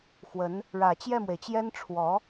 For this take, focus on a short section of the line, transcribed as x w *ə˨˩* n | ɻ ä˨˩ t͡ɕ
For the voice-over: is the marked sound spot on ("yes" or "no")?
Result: no